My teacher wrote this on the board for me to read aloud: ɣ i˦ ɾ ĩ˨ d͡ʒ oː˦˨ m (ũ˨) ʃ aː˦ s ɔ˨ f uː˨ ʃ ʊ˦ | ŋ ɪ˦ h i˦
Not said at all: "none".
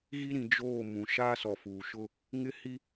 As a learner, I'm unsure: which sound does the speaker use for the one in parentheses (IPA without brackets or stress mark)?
ũ˨